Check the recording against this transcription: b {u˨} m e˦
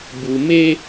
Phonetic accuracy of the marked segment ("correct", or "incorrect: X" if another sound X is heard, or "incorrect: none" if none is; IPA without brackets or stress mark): correct